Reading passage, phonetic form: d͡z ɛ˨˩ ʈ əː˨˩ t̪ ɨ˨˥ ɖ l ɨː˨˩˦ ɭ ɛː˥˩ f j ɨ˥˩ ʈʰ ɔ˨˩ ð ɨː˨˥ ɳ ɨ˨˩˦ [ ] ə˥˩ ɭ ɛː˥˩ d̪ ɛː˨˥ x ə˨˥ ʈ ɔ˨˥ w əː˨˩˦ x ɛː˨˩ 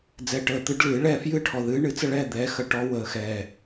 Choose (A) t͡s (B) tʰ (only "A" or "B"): A